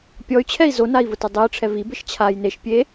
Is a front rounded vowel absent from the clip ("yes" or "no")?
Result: no